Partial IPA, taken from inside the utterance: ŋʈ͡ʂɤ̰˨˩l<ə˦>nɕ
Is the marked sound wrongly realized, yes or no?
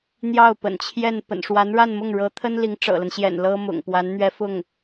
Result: no